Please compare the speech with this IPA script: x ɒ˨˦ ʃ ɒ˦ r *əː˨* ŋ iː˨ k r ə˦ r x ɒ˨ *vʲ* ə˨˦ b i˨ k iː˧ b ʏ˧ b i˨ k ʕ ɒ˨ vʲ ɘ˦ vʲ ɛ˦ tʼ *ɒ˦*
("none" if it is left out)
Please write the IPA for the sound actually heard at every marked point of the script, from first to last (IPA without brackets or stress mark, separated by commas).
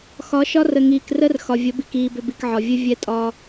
ə˨, vʲ, ɒ˦